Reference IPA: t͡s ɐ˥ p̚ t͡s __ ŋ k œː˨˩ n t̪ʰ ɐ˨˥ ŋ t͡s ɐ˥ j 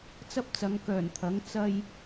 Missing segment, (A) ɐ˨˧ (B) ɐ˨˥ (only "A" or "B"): A